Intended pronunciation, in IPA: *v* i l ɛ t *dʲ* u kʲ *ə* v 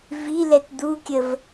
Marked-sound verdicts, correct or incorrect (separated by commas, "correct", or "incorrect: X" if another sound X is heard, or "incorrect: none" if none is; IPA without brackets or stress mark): correct, incorrect: d̪, correct